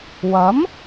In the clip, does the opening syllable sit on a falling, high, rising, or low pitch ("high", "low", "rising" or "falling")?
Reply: rising